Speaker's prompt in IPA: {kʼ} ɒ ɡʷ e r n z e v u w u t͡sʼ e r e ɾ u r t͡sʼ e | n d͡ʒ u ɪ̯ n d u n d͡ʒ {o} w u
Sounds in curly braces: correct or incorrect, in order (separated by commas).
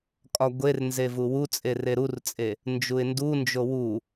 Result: correct, correct